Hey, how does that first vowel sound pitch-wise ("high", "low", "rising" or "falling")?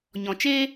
low